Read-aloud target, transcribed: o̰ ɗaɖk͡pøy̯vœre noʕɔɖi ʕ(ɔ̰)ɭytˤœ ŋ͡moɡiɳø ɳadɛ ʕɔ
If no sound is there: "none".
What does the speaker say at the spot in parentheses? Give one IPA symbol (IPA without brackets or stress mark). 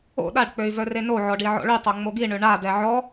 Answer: ɔ̰